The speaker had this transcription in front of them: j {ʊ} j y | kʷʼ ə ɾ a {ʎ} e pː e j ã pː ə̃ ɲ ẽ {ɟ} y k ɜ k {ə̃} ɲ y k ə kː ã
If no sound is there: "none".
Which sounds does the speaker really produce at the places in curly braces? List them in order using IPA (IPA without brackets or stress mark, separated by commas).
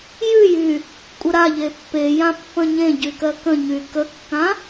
ʉ, ʎ, ɟ, ə̃